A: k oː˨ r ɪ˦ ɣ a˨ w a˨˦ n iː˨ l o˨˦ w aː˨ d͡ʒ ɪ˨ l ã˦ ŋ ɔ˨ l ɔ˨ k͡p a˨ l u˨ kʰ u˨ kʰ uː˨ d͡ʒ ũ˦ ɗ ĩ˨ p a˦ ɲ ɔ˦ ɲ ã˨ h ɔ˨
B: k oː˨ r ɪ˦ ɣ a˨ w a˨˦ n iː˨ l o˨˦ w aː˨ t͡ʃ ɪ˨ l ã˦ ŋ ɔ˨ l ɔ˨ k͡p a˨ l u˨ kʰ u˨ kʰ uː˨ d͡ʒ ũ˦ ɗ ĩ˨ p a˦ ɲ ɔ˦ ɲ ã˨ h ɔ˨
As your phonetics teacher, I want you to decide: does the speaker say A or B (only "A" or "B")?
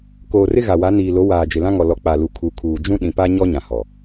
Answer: A